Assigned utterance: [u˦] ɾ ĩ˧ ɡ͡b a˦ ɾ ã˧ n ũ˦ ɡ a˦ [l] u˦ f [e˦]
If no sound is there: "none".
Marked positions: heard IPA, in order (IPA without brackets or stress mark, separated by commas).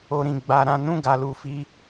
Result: o˦, l, i˦